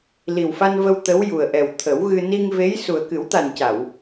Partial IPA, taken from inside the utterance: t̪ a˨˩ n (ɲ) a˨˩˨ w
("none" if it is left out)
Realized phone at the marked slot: c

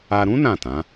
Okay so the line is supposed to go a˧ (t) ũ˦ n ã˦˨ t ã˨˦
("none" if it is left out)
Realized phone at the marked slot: ɾ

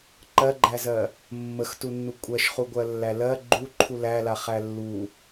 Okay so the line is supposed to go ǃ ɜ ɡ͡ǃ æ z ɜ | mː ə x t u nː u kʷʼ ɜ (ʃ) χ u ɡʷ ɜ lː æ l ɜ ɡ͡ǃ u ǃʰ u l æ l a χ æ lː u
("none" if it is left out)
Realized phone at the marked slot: ʃ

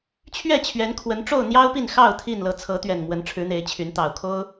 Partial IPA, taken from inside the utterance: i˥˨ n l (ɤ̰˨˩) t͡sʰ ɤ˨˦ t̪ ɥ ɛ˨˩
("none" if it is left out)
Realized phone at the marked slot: ɤ˨˦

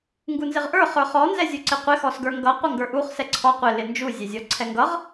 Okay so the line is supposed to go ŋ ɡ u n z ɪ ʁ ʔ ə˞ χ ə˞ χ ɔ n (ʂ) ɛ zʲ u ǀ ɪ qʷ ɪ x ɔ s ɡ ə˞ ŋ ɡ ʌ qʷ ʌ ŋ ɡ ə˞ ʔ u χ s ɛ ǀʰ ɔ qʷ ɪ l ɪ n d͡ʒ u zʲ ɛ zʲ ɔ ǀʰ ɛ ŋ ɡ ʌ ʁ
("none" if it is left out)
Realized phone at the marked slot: z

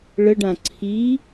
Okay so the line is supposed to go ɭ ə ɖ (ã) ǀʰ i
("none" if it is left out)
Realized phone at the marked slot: ã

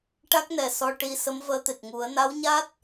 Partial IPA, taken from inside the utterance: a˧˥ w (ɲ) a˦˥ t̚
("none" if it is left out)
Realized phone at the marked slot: ɲ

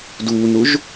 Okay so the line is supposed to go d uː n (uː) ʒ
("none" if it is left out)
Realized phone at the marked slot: u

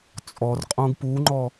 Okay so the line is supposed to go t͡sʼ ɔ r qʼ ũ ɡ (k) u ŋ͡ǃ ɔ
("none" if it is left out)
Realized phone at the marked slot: p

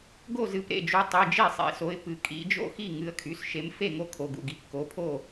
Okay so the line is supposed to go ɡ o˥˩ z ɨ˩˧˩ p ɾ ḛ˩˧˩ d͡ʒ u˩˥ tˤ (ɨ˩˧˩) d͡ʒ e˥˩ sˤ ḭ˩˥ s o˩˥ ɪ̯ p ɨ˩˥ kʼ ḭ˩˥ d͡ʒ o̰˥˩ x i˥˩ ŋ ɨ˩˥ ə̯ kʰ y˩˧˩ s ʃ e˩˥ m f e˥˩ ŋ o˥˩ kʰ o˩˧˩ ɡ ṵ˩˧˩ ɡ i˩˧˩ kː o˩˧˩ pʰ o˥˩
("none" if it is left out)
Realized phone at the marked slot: ɨ˩˧˩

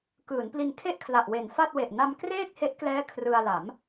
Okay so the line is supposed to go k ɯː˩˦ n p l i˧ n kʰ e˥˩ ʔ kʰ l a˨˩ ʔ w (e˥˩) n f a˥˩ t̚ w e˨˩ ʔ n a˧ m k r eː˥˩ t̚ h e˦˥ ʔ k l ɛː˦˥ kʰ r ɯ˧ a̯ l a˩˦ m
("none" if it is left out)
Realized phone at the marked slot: e˨˩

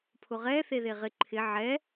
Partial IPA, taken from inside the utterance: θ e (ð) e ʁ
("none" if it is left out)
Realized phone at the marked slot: ð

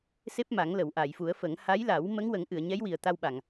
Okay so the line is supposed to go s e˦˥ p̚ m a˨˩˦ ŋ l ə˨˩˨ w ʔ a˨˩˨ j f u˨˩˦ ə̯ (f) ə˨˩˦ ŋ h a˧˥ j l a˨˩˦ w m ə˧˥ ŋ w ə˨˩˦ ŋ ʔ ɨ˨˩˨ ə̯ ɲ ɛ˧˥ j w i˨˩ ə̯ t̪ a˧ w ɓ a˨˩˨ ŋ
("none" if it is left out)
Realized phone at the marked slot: f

